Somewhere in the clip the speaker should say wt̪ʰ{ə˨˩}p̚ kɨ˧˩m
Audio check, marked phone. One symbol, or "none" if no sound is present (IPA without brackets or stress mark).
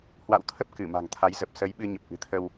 ə˦˥